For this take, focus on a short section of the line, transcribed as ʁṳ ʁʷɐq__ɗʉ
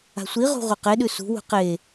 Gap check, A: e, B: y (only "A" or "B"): A